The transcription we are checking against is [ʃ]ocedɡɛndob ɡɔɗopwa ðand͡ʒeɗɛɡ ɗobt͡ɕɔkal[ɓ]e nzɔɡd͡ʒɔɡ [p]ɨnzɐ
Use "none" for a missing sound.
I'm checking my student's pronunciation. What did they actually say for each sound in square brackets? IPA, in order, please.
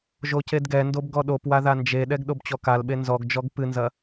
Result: ʒ, ɓ, p

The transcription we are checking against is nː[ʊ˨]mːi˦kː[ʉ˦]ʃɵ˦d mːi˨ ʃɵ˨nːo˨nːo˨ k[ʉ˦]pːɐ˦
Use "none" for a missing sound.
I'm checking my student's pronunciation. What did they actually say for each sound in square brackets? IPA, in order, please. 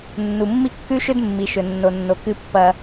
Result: u˨, ʉ˦, ɨ˦

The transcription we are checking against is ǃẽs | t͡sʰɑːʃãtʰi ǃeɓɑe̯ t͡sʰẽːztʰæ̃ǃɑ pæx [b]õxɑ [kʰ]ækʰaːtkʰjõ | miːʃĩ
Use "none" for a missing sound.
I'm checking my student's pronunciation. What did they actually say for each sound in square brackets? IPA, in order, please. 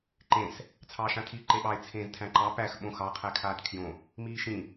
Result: ɓ, qʰ

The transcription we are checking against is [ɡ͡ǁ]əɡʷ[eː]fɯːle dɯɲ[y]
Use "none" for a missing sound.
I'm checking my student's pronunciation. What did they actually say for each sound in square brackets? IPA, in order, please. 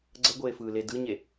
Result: ɡ͡ǀ, eː, e

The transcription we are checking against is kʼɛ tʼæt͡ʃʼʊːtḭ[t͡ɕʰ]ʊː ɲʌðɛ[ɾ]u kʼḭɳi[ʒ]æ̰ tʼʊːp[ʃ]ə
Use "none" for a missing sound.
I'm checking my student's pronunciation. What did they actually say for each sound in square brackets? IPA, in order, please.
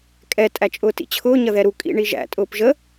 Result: t͡ɕʰ, ɾ, ʒ, ʒ

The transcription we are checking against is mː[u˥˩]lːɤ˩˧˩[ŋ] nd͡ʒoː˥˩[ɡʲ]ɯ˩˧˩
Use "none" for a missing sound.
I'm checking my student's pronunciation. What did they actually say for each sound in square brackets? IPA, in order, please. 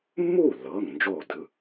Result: u˥˩, ŋ, d

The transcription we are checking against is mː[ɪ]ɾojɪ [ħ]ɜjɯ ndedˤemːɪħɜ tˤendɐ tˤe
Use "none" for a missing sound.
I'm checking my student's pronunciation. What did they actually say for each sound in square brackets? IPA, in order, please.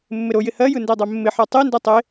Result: ɪ, h

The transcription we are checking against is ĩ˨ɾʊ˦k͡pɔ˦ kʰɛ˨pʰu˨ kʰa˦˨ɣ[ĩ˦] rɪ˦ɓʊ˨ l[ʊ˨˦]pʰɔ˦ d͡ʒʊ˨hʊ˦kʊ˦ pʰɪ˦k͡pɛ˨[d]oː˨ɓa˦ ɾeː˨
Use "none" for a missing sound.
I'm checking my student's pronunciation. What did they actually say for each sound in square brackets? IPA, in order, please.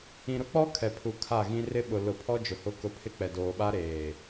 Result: ĩ˦, ʊ˨, d

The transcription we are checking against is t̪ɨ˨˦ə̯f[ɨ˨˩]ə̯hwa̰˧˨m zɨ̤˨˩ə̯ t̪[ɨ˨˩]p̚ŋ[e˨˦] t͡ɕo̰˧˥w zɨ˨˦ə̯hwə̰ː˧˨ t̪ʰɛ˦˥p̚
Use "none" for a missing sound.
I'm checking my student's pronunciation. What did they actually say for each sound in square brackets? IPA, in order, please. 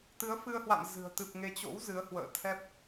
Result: ɨ˧, ɨ˨˩, e˨˦

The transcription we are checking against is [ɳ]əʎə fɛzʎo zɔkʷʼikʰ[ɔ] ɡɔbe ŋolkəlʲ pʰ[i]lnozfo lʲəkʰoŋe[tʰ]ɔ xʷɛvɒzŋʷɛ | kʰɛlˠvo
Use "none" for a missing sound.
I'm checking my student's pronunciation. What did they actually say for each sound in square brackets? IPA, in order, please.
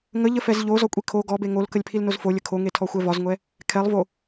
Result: ŋ, o, i, tʰ

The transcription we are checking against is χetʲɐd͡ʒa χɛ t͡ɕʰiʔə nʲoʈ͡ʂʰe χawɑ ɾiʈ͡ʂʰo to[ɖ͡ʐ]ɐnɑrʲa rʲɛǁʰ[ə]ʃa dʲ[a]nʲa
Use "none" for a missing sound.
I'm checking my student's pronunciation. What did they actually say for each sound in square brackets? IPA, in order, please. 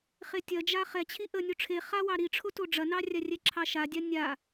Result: ɖ͡ʐ, ɑ, a

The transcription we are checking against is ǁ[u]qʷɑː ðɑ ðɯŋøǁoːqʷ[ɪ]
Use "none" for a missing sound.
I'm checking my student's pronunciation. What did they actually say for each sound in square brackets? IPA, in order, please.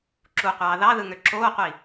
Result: u, i

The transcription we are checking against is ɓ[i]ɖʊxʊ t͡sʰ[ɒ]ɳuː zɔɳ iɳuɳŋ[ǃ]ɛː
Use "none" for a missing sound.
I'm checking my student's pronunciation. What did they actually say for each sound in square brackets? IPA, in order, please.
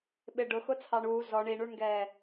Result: ɪ, ɑ, ɡ

